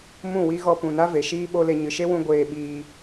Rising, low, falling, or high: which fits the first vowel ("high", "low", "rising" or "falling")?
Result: falling